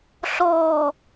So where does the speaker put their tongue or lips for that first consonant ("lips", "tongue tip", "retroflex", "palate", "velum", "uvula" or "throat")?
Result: tongue tip